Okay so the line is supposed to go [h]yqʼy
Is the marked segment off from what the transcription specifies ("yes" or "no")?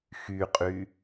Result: yes